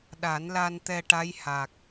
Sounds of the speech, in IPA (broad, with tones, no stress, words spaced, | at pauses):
ɗa˨˩˦nla˧nt̪ɛ˧ ʈa˧˥jha˨˩k̚